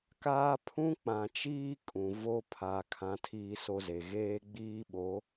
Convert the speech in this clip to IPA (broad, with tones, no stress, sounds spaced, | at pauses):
k aː˦ pʰ ũ˦ k͡p ã˨ t͡ʃ iː˦ kʼ ũ˨ v o˦ pʰ a˨ kʰ ã˦ tʰ iː˦ s o˦ z e˨ ɣ eː˦ ɡ͡b iː˦ ɓ o˨˦